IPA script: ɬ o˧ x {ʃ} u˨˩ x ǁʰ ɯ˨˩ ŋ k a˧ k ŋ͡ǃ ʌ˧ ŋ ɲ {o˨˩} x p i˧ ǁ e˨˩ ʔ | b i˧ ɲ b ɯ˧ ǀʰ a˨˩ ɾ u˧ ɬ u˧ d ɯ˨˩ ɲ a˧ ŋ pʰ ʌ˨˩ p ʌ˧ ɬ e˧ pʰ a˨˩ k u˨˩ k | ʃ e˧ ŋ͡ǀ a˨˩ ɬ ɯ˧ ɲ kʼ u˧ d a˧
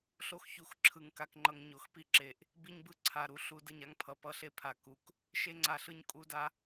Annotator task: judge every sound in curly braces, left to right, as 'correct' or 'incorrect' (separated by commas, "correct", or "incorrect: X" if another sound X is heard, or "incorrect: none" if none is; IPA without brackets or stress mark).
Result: incorrect: ç, correct